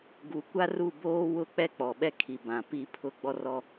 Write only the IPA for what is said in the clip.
ɡ u˨ kʷ a˦ r u˦˨ b oː˦ w ʊ˦˨ k͡p ɛ˦ k͡p ɔ˨ ɓ ɛ˦ kʰ i˨ b ã˨ p i˦ pʰ ʊ˦ ɡ͡b ɔ˦ r ɔ˦

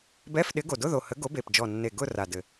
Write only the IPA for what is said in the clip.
b ɛ˧˥˧ f ɗ ɪ˨˥ ɡ o˨˩ d ʊ˧˥˧ ð o˨˩ h ə˨˥ ɡ o˨˥ b e˨˩ p d͡ʒ ɔ˨˩ nː e˨˩ ɡ ʊ˥˧ r a˨˩ d ɘ˨˩

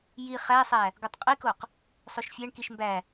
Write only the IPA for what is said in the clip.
j i χ æ sˤ æ | ɡ o tˤ qʼ i k o q | sˤ o ʃ fʲ æ ɳ k i ʃ m b æ

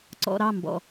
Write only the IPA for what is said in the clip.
ǀ ɔ̰˨ ɾ ɑ˦˨ m b ɔ̰˨

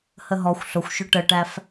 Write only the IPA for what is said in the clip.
h ə ɦ ɔ xʷ ɬ ʊ xʷ ʃ ʊ ʈ ə ʈ æ f

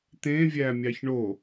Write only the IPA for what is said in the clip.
t̪ ẽ vʲ æ mʲ ɑ ç ɳ o

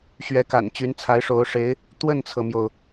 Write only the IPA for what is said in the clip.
ɕ ɥ ɛ˧˥ k a̰˨˩ n t͡ɕ y˧˥ n t͡sʰ a˧˥ ɪ̯ ʂ o˧˥ ʊ̯ ʂ e˧˥ ɪ̯ | t̪ w ə˥˩ n t͡sʰ ɤ˩ m j o˩ ʊ̯

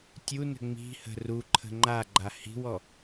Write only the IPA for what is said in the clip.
tʲ u n ə̤ ŋ͡m i̤ h ə̤ r u ǃʰ ə̤ ŋ͡ǃ a ɡ͡ǃ a h i̤ w ɔ

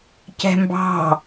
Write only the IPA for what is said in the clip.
c ɛ̤ m b ɑ̤

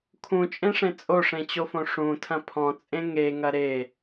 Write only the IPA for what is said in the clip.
kʰ ũ t͡ʃʼ ẽ ʂ ẽ t͡sʼ o ʂ ẽ t͡ɕ o f õ ʂ ũ tʰ ɐ̃ pʰ ɔ̃ t͡sʼ ẽ ŋ e ŋ ɐ ɾ e

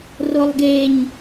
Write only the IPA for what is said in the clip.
r o lˠ ɡ e ɲ

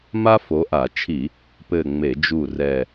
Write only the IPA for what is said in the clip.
m a˥ f o˨˦ ʔ a˧˩˧ t͡ʃʰ i˧˩˧ | p ɘ˦˨ ŋ͡m e˧˩˧ d͡ʒ u˦˨ r ɛ˦˨

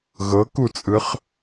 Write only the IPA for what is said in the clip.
ɣ ɤ k u t͡sʼ ɯ χ

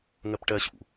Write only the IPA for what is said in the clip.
ŋ ɜ p ʈ ɜ ɕ ṵ

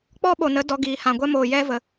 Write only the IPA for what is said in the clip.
k͡p ɔ˦ ɓ o˨ n ə˨˦ d ɔ˧ ɡ iː˨ h ã˨ ɡʷ ɛ˦ m oː˨ j ɛ˦ v ə˨

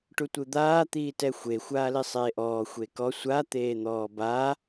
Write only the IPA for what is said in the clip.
ʈ u tʷ ɯ d̪ aː t̪ iː t ɛ xʷ e xʷ aː l i sˤ eː ʔ ɔː xʷ e k ɔ sʷ a t̪ eː n̪ ɔː b a

